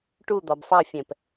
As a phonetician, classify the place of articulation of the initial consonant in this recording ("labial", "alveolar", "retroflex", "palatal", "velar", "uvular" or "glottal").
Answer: retroflex